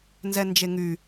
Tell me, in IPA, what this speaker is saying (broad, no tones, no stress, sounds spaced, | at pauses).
n z ɛ n d͡ʒ e ŋ y